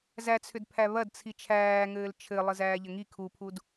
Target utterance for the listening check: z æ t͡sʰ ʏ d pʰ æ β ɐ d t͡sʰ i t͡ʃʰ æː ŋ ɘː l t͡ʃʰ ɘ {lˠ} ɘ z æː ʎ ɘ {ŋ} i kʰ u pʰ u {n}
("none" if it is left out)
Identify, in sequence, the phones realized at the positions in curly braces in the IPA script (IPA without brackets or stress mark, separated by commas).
lˠ, ŋ, d